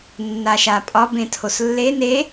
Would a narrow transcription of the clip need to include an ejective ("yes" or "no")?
yes